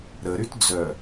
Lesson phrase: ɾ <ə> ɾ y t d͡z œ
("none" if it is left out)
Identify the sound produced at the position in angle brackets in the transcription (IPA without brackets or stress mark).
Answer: ə